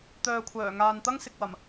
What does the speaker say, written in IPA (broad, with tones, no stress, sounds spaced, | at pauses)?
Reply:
t̪ œː˨ kʷʰ œː˨˩ ŋ aː˨ n t̪ ɐ˥ ŋ s ɪ˨ k̚ w ɐ˨˩ m